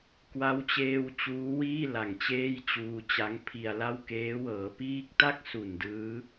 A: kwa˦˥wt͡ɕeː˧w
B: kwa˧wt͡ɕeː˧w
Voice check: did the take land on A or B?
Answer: A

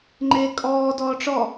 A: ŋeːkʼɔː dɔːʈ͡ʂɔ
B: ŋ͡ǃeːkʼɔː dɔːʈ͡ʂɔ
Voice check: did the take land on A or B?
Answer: B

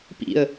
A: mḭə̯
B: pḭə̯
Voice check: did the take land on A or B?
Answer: B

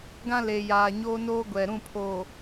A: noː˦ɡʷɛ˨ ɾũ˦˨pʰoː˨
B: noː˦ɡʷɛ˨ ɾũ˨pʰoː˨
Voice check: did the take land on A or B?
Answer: A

